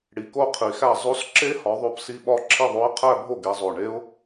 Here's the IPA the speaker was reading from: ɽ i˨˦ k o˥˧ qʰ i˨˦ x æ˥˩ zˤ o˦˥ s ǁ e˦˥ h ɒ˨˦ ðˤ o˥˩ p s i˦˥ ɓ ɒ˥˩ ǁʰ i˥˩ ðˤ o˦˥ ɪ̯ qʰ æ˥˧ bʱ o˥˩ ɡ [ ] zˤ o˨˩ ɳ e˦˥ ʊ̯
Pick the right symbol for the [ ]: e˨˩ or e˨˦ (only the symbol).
e˨˦